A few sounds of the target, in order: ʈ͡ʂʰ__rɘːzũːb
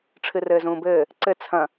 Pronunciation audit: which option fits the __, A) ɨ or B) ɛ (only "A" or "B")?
A